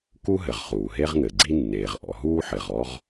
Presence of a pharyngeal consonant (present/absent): present